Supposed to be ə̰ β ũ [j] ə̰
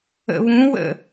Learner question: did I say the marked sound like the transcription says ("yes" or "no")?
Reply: no